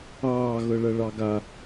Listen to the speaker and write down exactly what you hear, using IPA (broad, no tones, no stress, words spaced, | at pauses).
ɑː ɣɤɭɐɭɑɡa